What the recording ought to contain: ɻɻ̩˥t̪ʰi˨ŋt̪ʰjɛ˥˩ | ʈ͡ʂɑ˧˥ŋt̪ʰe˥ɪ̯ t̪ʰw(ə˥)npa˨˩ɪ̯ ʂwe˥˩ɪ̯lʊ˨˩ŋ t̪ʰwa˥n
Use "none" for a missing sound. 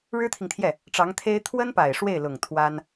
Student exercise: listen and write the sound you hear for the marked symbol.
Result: ə˥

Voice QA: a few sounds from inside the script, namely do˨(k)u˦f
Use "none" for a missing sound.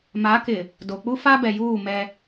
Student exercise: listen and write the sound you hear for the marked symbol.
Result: k͡p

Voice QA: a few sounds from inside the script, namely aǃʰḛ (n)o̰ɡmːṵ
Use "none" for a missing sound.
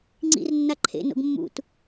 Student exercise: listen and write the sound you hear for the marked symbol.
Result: n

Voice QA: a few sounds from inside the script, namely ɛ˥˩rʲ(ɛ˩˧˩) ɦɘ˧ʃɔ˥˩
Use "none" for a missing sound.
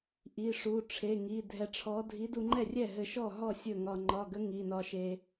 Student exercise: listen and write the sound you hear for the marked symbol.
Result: ɛ˥˩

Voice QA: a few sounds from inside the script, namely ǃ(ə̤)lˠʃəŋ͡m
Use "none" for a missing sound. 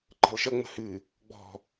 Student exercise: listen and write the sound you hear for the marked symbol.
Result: ə̤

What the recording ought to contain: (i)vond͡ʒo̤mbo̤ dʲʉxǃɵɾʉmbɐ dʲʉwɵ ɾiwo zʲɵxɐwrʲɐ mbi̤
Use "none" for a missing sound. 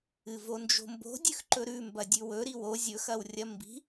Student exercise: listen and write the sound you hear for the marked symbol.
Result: ɨ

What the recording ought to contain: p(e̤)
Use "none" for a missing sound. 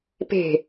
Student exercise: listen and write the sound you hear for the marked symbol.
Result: e̤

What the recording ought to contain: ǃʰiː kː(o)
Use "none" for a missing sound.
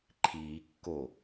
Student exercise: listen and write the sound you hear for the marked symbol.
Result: o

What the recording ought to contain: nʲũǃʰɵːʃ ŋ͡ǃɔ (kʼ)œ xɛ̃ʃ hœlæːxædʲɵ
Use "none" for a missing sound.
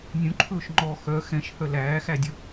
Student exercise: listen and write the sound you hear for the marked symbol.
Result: x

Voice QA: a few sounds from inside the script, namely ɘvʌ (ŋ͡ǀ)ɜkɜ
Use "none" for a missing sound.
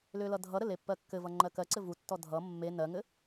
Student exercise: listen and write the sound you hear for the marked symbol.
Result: ŋ͡ǃ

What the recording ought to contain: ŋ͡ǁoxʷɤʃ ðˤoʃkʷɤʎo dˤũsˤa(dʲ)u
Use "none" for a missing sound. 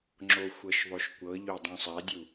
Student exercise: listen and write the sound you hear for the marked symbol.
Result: dʲ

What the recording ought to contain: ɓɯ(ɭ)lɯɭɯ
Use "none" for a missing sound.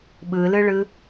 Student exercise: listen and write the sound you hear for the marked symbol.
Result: none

